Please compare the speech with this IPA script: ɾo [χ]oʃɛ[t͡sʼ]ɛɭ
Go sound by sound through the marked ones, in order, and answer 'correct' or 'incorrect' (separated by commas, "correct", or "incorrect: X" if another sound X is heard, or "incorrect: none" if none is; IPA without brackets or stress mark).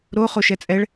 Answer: correct, correct